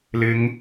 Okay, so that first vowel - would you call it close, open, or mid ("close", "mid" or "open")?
close